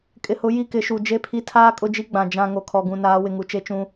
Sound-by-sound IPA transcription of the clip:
kʼɪ˨hʊ˨˦ ji˦˨kɪ˨˦ʃu˨ d͡ʒe˦pʰi˦ tʰaː˦kʼʊ˦˨d͡ʒi˦ ɡ͡bã˨ d͡ʒã˦˨ ŋo˨kʰɔ˨ɡũ˨ naː˨˦wɪ˨ŋu˨ t͡ʃe˦ t͡ʃũ˦

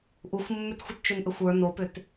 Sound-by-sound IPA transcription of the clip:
ʔuxʷmːʏtxʷət t͡ʃʏnʔʏxʷə˞ nopʏt

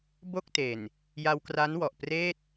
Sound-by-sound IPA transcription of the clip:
bo˥˩k̚te˨˩n | ja˧wkra˦˥n wɔ˨˩ʔpreː˥˩t̚

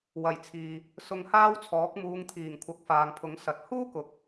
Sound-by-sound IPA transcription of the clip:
wɐ˨˩jt͡sʰiː˨ | sʊ˧ŋhaː˥wt͡sʰɔː˨˥k̚ muː˨˧ŋt̪ʰiː˨˩ŋ kʷʰɐ˨˥k̚faː˨ŋpʰʊ˨˥ŋsɐ˨t̚ huː˥kʊ˨˥k̚

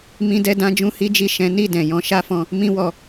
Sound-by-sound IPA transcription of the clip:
mĩ˧dɛ˧dã˧ d͡ʒũ˦hi˦d͡ʒi˦˨ ʃɛ̃˨˦ni˦˨ dɛ̃˨jɔ̃˧ ʃa˦fɔ̃˧ | mĩ˦wɔ˧

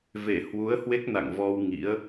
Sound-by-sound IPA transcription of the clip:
ve˧˩ hwu˨˦ə̯hwe˦˥k̚ na̰˧˨ŋvɔ˧w ŋḭ˧˥ə̯

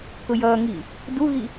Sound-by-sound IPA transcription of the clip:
kʊjʌːŋiː | duɣi

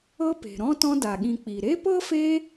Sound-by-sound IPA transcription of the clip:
ɤ˦pe̤˩ ɾɔ̃˥tɔ̃˦da˩ ɠĩ˨k͡pi˩ɾe˥ pɤ˥fe˦

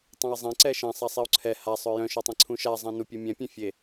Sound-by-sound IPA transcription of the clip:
tˤẽi̯zˤɛ̃ǀɛ ʃɛ̃ sˤasˤiu̯ǀʰɛ hasˤœ jœ̃ʃœtˤẽ ǀʰũʃa zˤɛ̃nupʲu mʲɛ̃pʲẽ fʲe

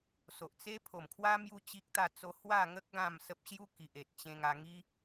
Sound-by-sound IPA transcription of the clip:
so˨ʔt͡se˦ pʰo˨˩mkʰwa˦ mju˦t͡ɕi˦k̚ t̪a˥˧t͡so˦ hwa˥˧ŋə˦k̚ ɡã˥˧msə˦p̚ ɕju˦ ki˨ʔe˨t̚t͡ɕẽ˧ŋa˧ ŋi˦

